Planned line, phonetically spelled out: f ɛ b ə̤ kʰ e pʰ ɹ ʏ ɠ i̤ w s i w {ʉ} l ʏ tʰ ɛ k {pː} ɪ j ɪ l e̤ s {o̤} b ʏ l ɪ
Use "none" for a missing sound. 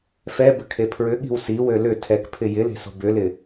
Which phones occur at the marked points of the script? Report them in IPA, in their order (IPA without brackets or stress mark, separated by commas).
ø, pʰ, o̤